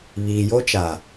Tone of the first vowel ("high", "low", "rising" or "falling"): low